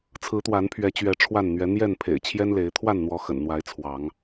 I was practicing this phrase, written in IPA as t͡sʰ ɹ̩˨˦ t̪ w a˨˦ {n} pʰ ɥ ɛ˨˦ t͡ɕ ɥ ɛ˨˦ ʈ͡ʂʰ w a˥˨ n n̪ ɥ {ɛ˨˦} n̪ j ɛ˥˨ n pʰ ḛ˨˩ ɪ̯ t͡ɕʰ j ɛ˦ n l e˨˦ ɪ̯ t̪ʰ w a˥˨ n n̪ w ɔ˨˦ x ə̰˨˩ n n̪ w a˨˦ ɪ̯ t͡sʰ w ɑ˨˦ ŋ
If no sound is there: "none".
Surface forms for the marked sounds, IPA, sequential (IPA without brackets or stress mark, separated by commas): n, ɛ˨˦